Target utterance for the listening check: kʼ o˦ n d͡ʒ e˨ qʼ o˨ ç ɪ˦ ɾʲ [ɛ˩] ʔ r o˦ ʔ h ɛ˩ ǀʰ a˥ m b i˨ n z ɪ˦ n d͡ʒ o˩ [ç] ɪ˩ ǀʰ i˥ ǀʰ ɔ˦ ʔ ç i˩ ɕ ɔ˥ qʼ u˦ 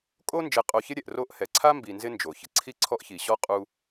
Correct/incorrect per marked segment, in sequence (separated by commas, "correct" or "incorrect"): correct, correct